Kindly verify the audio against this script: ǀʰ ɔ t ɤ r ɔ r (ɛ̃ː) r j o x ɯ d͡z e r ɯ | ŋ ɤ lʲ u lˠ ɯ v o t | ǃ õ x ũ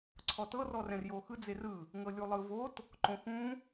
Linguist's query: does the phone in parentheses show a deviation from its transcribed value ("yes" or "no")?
yes